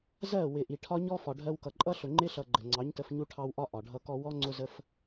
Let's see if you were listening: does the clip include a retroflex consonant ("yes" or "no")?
yes